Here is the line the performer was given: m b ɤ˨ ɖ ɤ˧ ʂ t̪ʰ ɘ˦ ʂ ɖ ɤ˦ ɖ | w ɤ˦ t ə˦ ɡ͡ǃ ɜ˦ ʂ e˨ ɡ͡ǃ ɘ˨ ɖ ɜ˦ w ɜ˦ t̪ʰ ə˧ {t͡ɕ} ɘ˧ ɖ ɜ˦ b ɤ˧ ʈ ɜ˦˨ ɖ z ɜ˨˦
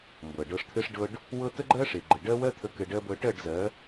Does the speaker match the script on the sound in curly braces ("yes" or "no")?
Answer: no